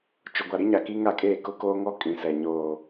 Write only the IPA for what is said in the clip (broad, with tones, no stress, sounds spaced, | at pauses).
t͡ʃ ʊ˨ ɡʷ a˨ ɾ i˦ ɲ a˨ k i˦ ŋ a˦˨ kʼ eː˦˨ k ʊ˦ k oː˦ ŋ ɔ˦ kʼ ĩ˨ s ɛ˨ ɲ oː˨